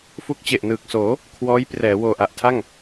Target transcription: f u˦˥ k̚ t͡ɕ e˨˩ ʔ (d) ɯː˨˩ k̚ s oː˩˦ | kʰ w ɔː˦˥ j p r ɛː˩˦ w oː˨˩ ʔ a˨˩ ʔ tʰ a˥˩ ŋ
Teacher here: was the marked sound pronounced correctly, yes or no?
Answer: no